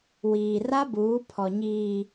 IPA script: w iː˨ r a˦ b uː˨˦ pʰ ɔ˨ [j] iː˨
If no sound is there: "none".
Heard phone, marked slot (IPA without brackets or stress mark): ɲ